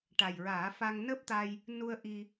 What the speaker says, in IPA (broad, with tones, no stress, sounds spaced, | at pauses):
ʈ a˨˩ j ɹ aː˨˩˦ f a˧ ŋ n əː˦˥ p̚ t̪ a˧ j | n u˧ ə̯ ʔ i˧